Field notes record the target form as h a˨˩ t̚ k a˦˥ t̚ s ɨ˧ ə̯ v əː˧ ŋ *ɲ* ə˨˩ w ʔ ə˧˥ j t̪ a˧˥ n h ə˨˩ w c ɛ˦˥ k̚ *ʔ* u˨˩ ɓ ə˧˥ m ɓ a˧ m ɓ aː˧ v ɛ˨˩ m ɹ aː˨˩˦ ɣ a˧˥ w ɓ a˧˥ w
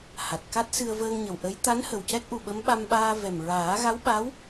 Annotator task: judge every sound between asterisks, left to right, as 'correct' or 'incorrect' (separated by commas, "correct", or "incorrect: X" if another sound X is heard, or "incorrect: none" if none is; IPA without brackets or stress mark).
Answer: correct, correct